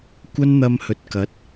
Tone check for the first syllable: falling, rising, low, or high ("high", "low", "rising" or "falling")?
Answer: high